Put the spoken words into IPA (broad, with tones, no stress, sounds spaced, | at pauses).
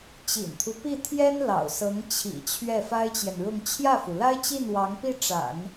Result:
t͡ɕ ḭ˨˩ n t̪ʰ u˦ p i˥˩ t̪ʰ j ɛ˥ n l ɑ̰˨˩ ʊ̯ s ɤ˧˥ ŋ t͡ɕʰ ḭ˨˩ t͡ɕʰ ɥ ɛ˥˩ f a˥ ɪ̯ t͡ɕ j ɛ˨ n ɻ ʊ˥˧ ŋ t͡ɕʰ j ä˥˩ f u˩ l a˥ ɪ̯ t͡ɕ i˥˩ n w ɑ˧˥ ŋ p i˥˩ ʈ͡ʂ a̰˨˩˦ n